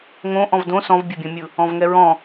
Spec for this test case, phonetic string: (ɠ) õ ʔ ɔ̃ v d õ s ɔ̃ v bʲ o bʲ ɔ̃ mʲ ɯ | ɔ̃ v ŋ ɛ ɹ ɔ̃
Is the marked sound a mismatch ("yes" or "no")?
yes